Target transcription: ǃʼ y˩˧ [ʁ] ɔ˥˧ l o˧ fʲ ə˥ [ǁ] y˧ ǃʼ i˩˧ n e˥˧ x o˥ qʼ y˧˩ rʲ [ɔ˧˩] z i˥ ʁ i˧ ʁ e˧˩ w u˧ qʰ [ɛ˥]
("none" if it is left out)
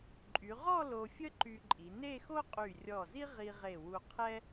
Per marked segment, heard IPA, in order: ʁ, ǃ, ɔ˧˩, ɛ˥

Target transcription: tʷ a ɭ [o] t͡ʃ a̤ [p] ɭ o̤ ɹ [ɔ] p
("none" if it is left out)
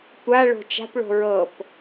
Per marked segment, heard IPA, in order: o̤, p, ɤ

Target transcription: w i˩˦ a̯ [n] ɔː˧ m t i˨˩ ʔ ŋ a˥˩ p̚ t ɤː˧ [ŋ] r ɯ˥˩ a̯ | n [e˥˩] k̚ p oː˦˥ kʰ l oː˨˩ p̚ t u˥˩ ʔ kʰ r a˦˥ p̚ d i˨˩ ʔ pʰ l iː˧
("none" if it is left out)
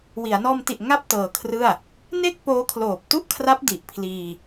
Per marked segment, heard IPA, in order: n, kʰ, e˥˩

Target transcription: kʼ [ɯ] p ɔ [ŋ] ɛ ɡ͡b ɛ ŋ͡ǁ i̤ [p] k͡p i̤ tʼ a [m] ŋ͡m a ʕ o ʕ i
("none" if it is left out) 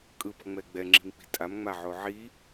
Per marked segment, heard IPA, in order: ɯ, ŋ͡m, m, m

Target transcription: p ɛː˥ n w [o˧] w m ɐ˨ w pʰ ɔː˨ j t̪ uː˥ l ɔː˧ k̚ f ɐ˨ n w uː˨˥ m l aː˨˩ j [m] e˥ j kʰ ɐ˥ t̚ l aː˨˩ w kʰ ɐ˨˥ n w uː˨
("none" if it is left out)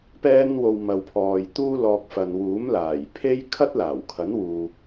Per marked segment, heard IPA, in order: o˧, pʰ

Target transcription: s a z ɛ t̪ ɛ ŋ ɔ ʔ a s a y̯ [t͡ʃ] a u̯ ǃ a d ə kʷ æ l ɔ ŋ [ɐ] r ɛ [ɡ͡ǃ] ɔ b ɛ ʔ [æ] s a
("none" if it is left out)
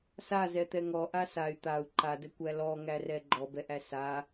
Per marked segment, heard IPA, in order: t̪, æ, ɡ͡ǃ, æ

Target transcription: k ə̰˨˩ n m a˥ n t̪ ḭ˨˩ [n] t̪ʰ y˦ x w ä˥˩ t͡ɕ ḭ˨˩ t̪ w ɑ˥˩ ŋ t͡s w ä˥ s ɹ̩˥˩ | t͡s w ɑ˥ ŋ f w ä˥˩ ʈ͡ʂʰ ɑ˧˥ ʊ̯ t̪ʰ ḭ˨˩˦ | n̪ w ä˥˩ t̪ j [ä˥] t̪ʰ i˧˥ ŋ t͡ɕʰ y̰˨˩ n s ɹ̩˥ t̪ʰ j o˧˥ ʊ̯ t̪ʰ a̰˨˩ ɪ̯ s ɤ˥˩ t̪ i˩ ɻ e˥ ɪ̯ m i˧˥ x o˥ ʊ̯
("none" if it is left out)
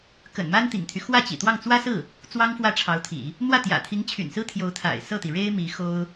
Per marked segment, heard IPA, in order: ŋ, ä̰˨˩

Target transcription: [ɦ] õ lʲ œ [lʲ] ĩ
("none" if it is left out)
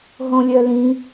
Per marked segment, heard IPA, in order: ɦ, l

